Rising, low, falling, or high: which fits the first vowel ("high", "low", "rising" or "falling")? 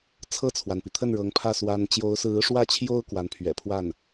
falling